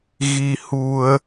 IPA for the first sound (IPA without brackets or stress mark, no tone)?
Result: ɣ